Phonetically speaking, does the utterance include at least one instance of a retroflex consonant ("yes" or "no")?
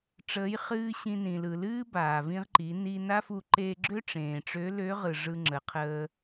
yes